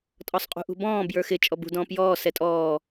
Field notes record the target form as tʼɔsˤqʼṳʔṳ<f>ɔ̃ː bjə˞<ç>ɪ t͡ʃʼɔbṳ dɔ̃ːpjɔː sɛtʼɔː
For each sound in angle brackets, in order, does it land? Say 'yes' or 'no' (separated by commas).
no, no